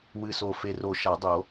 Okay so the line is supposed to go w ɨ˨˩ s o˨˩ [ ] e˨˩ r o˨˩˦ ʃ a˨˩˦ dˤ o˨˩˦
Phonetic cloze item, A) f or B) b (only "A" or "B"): A